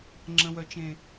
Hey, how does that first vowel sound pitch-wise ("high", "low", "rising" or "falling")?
low